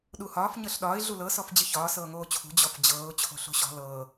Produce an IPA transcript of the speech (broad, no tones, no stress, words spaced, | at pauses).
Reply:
ɗuhɒːf ɲɤɬɗɒːɪ̯ ɮulɤ sɔfd͡ʑɨçɒː sɤːŋoːt͡ɕʰṳ d͡ʑɔfd͡ʑɤːʊ̯ t͡ɕʰo̤ɬo̤ɕɔ̤ lɤː